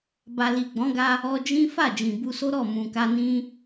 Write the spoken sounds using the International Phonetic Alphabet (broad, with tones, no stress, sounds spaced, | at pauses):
b a˨ l i˨ ɡ͡b ɔ̃˨˦ ɡ a˧ | ɔ˧ d͡ʒ ĩ˦ f a˦˨ d͡ʒ ĩ˨ b u˧ s o˦ ɾ ɔ˦˨ m ũ˨ k a˧ n ĩ˦